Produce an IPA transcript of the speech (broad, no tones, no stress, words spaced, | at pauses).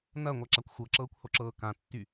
nɐːŋʷaǁakʷ xʷɤǁɤːkʷhoǁɤː kãtːy